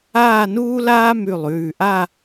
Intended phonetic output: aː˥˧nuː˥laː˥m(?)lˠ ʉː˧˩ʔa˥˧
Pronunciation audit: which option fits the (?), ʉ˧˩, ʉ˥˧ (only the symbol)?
ʉ˧˩